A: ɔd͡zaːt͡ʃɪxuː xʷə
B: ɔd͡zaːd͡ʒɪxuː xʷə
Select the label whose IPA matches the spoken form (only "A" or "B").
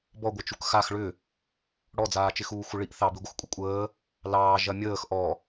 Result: A